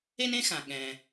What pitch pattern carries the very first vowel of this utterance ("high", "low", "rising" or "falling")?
high